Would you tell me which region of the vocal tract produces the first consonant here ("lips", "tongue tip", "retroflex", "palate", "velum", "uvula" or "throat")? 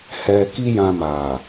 throat